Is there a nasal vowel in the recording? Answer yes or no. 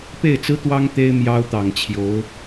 no